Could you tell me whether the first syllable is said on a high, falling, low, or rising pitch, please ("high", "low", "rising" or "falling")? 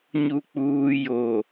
low